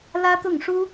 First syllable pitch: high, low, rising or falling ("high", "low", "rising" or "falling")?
high